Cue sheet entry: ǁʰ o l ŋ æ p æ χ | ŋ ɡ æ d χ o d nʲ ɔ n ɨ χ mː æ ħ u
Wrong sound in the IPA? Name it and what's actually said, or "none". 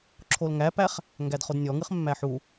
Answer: n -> ŋ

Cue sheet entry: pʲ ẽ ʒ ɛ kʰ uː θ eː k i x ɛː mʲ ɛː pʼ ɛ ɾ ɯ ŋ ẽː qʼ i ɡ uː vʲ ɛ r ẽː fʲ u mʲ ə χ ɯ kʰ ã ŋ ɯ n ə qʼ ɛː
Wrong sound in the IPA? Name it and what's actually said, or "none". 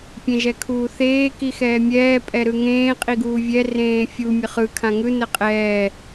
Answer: none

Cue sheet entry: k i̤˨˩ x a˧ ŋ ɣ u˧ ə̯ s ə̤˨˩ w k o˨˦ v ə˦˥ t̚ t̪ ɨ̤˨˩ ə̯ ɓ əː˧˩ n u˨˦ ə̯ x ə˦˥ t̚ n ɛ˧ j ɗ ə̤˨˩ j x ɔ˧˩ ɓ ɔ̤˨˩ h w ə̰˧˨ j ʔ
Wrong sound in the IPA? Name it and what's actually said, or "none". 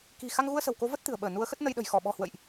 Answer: ɛ˧ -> ə˧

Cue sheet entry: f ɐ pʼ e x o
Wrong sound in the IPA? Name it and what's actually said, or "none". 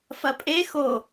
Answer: none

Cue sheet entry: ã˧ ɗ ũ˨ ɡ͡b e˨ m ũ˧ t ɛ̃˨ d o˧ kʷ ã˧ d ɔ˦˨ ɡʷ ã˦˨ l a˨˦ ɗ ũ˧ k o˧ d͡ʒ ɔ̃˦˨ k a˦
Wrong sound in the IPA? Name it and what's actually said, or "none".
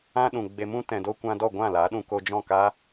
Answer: none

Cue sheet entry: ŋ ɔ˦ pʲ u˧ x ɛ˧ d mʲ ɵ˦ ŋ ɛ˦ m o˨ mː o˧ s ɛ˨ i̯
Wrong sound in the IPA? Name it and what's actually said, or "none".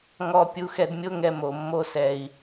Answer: ɵ˦ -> o˦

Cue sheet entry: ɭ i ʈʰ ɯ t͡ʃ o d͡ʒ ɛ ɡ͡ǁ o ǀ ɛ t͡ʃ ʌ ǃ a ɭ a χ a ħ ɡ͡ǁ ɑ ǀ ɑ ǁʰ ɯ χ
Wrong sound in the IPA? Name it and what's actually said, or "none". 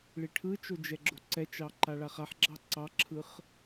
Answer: ʌ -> ɑ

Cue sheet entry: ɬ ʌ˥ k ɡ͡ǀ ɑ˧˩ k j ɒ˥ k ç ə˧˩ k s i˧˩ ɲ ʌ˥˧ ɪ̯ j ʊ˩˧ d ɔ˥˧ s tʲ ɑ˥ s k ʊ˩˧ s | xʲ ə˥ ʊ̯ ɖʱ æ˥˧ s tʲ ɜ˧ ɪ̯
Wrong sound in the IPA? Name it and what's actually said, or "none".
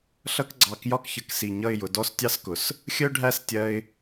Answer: none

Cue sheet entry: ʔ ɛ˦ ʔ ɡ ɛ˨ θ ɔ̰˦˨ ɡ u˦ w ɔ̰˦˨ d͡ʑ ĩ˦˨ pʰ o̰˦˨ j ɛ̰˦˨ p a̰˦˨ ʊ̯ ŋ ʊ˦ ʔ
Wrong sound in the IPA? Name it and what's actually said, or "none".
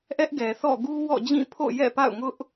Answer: none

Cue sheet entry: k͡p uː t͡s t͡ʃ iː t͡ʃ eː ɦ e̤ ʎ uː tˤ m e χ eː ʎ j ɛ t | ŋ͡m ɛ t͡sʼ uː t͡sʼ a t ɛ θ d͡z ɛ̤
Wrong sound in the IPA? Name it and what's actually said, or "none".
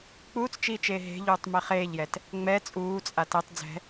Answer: θ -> tˤ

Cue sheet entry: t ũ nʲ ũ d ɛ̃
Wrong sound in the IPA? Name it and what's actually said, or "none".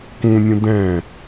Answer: t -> k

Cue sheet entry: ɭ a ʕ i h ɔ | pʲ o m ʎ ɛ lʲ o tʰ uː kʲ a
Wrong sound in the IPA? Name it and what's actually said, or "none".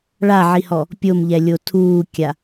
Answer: none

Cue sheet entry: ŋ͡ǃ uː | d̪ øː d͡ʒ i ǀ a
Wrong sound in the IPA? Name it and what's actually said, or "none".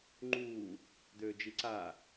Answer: none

